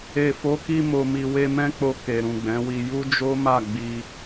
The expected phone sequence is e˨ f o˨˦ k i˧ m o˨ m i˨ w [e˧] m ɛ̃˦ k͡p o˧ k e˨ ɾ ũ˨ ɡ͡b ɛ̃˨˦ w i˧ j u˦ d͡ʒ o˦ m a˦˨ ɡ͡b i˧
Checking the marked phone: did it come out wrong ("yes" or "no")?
no